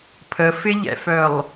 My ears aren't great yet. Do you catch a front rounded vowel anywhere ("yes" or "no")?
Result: yes